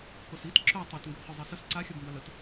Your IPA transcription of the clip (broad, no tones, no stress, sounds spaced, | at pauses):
k o s i t ǁ œ tˤ o t ŋ ɡ ɵ b χ œ zˤ i s ə s ǀ a xʲ ʌ b m b a l ə t